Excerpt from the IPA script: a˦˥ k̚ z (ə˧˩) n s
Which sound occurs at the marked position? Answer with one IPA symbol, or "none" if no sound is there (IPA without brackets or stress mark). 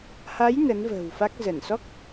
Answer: ə˧˩